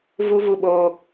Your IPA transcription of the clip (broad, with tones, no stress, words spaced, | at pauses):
vu˦vu˧ɓoː˧